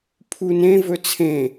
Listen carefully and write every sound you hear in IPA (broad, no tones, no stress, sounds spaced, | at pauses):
pʰ u n ẽ v ɵ t͡sʰ ẽ